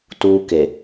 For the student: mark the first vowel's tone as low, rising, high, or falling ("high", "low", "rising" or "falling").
high